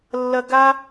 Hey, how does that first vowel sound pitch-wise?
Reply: high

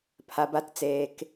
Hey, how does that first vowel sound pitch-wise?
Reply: low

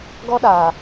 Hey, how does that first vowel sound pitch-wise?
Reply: high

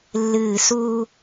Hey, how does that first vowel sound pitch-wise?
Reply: falling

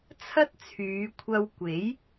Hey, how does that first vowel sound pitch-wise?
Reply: high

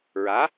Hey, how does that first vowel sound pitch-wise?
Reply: rising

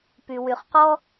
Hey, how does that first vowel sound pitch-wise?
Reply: low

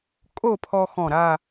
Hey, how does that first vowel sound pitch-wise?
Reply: falling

